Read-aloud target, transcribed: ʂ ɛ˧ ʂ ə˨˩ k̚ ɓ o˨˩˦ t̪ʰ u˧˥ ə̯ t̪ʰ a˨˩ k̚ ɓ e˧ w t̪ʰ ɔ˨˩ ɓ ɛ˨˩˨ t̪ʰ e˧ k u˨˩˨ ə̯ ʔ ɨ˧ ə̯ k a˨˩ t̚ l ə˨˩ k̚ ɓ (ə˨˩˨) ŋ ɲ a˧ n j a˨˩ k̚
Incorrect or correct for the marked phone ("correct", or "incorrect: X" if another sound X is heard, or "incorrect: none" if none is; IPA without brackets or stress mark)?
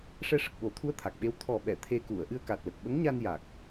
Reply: incorrect: ə˧˥